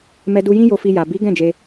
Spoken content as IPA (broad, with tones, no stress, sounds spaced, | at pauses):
m ɛ˧ d u˧ j ĩ˦ j o˧ f i˧ j a˨ b i˨˦ ɡ ɛ̃˦˨ d͡ʒ e˧